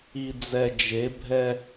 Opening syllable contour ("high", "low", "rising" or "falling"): low